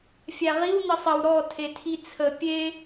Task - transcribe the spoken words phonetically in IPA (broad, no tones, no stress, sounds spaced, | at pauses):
fʲ æ ʁ i w n ə sˤ ə w ɾ ɔ tʰ e tʰ i t͡sʰ ə pʲ e